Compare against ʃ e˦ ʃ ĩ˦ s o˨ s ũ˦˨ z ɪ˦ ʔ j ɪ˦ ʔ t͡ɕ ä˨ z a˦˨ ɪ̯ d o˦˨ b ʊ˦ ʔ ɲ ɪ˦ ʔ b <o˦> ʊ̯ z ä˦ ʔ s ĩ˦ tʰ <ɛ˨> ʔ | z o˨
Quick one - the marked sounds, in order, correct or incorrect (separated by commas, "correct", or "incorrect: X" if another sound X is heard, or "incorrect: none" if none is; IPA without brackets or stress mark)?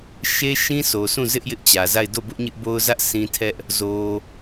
correct, incorrect: ɛ˦